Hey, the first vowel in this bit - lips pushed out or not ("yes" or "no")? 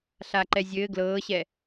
no